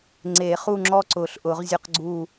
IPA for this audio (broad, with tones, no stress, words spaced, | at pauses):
ŋ͡ǀe˨˩˦ χu˥˧ŋ͡ǁɔ˥˧ǀʊ˨˩˦ɬʔʊ˨˩˦ʁ zʲʊ˥˧qɡ͡ǀu˥˧